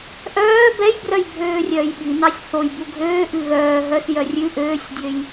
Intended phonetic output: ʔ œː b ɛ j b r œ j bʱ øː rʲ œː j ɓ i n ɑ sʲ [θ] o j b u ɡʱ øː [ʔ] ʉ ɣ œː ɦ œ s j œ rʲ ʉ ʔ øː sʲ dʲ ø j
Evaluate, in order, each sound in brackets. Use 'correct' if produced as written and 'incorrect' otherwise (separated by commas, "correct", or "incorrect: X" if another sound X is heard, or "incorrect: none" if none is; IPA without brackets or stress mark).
correct, correct